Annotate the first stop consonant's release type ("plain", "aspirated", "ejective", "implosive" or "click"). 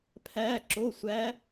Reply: aspirated